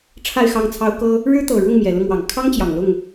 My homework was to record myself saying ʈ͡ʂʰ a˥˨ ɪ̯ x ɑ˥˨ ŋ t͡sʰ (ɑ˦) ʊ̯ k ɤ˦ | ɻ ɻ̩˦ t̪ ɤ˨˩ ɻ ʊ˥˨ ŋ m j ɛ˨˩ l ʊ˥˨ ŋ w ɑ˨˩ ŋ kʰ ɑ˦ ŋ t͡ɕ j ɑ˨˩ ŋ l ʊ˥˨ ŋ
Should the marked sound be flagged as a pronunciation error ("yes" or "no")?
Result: no